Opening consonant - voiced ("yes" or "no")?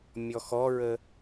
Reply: yes